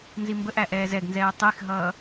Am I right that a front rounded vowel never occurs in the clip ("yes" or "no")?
yes